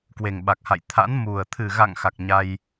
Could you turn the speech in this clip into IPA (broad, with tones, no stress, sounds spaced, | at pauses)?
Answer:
k w e˨˩ ŋ ɓ a˨˩ k̚ h a̰˧˨ j t̪ʰ a̰˧˥ n m u˨˩ ə̯ t̪ʰ ɨ˨˩ ɣ a̰˧˨ ŋ x a˨˩ k̚ ɲ a˧ j